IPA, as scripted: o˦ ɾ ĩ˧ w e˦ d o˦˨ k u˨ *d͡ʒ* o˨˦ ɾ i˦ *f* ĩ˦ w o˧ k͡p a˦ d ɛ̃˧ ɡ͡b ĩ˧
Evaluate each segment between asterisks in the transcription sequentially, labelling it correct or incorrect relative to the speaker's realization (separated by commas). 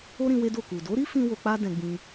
incorrect, correct